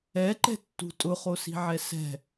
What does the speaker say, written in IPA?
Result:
ɛ ǃ ɛ̤ tː ṳ tʼ ʊ χ o s i̤ ʕ ɛ s ɛ̤

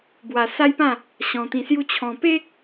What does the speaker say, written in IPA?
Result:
b w a˧ s a˦ j p ã˥˧ | ɕ ɔ̃˧ t̪ ĩ˧ s j u˥˧ t͡ɕʰ ɔ̃˧ p e˦ k̚

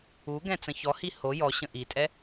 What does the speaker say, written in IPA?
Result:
u ɡ ɛ̃ t͡s ə̃ ç ɔ h i h o j ɔ ɕ ə̃ ʔ i tʼ ɛ

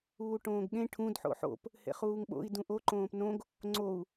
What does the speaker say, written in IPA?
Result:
uː ʈ õː ɡ ɠ ẽ ʈʰ ũ d ħ o̰ ħ o̰ p | h ḛ χ uː ŋ ɓ o̰ i̯ d ũ ʔ o ǃ õː p n õ ɡ | ŋ͡ǀ o u̯

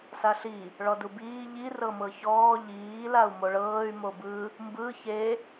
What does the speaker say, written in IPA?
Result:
s a ɬ i | ɭ ɔ d u b iː ʎ i r ɤ m ɤ ç ɔː ʎ iː l a u̯ m o ɭ ɤː y̯ m o b ɯ | m b ɯ ç e

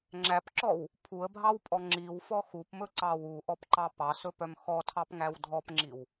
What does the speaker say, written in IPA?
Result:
ŋ͡ǁ æ p ǁ ɔ w | pʰ u ə̯ bʱ ɑ w pʼ ɔ ŋ͡ǁ i w f ɔ x u p m ɵ ǀ ɑ w u ʔ ɔ p ǃ ɑ p ɑ s ɵ p œ m x ɔ tʰ ɑ p ŋ æ w dʱ ɔ p ŋ͡ǁ i w

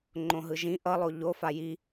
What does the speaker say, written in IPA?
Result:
ŋ͡ǃ õ ɦ ɯ ʒ ĩ ʔ ʌ lˠ o ʎ o f a j i

